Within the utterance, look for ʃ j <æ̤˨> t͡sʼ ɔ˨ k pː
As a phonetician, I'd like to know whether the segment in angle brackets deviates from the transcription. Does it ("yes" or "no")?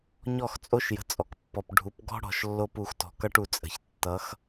yes